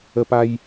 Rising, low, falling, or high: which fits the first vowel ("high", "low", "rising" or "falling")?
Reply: high